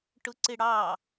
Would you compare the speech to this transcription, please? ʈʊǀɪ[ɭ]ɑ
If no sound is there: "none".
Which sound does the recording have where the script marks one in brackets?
ɽ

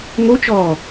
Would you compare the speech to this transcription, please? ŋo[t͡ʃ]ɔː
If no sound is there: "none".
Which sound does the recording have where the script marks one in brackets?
t͡ʃ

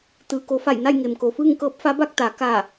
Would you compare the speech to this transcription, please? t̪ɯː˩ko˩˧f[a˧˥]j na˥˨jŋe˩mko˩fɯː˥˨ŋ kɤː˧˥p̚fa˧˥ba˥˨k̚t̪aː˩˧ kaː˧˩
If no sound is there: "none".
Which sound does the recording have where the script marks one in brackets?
a˧˩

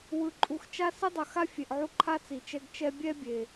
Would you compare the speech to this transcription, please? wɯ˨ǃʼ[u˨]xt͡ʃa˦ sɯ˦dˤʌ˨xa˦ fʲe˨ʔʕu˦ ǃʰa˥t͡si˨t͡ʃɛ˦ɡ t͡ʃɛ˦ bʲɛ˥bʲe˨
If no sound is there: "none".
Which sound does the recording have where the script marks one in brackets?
u˨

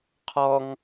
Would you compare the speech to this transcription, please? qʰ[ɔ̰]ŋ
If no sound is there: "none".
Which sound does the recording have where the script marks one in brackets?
ɔ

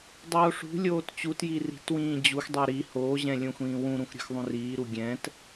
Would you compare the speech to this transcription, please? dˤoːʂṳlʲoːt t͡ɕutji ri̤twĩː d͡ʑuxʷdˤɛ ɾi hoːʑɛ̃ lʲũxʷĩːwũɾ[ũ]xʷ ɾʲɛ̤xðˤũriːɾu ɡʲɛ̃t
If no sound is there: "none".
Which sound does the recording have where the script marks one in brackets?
ũ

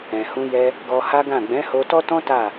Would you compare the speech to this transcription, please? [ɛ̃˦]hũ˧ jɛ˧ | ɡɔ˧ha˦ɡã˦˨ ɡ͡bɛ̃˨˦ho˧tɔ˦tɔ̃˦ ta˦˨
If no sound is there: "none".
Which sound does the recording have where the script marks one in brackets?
ɛ̃˨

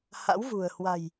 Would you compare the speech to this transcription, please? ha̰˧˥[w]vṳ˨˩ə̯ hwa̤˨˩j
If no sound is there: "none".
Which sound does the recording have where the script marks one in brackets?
w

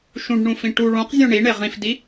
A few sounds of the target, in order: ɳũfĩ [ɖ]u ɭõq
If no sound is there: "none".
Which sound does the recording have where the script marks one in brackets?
ʈ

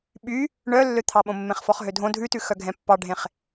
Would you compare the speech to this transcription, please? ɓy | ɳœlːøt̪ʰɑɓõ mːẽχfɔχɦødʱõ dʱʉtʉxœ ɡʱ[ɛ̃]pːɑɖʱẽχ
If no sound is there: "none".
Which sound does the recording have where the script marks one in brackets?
ɛ̃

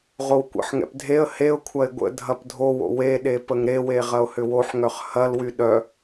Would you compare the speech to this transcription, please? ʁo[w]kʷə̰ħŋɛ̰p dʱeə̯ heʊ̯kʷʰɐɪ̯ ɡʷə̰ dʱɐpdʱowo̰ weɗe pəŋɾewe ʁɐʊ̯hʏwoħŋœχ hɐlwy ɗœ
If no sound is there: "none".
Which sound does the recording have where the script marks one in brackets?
w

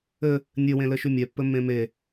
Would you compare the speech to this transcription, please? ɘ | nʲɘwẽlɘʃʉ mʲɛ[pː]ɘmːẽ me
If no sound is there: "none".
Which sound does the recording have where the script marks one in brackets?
pː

